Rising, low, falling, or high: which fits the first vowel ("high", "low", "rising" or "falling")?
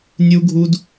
high